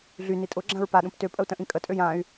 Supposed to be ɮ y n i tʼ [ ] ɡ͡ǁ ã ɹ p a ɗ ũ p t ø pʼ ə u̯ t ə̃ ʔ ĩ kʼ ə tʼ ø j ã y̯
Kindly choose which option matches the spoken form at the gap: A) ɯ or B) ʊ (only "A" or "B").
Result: B